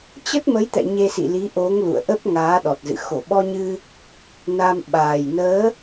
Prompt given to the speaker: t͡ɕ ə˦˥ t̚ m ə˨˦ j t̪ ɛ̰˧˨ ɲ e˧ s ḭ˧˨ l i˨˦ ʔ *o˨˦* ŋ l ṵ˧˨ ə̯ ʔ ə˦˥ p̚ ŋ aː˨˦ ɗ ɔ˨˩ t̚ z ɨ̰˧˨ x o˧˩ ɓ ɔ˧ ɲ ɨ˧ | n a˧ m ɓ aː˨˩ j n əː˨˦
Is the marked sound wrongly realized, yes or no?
no